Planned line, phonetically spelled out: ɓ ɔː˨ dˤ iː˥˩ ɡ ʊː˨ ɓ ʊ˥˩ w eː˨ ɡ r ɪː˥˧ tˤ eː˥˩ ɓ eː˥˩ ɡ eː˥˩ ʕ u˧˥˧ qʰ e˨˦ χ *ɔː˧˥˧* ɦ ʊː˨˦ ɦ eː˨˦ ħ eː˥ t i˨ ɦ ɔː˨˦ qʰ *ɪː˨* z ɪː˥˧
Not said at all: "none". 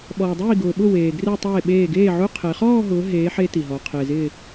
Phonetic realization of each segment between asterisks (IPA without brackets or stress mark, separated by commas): ɔː˥˧, ɪː˨